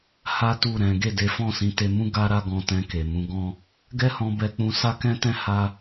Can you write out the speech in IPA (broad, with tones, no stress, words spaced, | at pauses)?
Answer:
ha˦tu˦˨ ɾɛ̃˨˦ ɡe˦˨de˨˦fɔ̃˦˨sĩ˨˦ te˧mũ˦ ɡa˦ ɾa˦ɡɔ̃˧tɛ̃˧ ke˨mũ˨˦ɡɔ̃˦ | ɡɛ˦hɔ̃˧bɛ˧k͡pũ˧ sa˦kɛ̃˦tɛ̃˦ ha˦